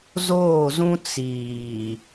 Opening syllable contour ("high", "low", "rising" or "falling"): falling